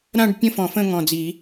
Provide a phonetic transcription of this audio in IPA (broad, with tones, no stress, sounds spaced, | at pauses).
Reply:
ɾ ã˥˧ ɖ pʲ ə̃˥˧ f ɔ̃˨˩˦ f ə̃˥˧ ŋ ɔ̃˨˩ d͡z i˨˩˦